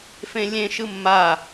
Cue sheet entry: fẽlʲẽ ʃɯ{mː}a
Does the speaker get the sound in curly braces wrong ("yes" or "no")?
no